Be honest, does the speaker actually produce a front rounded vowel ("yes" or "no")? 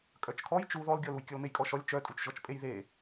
yes